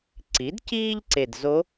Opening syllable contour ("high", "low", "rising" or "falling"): rising